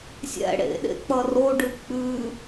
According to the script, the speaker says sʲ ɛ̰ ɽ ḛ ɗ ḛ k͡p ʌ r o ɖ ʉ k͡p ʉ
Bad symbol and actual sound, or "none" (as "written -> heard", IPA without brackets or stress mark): none